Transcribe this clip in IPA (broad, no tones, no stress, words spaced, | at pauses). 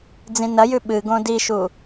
d͡zĩnɐjʉ ɓɨɡõ diʃu